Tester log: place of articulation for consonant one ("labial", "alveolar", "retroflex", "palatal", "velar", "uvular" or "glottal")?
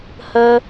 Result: glottal